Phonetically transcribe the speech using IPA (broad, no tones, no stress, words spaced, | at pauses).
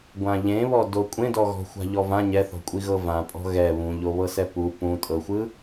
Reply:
ɡʷãʎẽβɔdo kʷʼẽdɔɣɔ̤xʷa̤ ʎɔvã ɲɛθɔ̤kʷʼiɣɤ vãpʼɔ̤ ɣɛ βũʎoβɤsɛ pu pũtʼɤxʷɯ